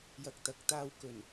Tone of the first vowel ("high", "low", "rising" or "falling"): low